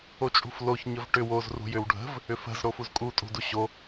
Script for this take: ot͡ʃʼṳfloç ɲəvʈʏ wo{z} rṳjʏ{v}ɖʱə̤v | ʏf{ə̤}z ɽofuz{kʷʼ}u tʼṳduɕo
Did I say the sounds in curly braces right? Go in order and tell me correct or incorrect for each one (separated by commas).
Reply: correct, incorrect, correct, incorrect